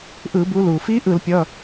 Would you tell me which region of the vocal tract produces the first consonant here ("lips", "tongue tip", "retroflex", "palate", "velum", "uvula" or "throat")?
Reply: throat